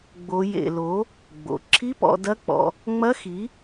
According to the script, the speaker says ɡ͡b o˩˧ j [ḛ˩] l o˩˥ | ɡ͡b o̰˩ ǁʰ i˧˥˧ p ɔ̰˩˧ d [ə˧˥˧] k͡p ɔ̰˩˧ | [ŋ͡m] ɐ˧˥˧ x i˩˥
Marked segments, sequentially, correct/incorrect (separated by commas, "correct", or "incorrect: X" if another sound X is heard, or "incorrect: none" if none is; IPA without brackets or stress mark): correct, incorrect: ɐ˧˥˧, correct